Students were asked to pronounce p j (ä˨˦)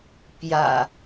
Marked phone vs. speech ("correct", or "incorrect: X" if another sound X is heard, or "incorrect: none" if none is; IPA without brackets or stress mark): incorrect: ä̰˨˩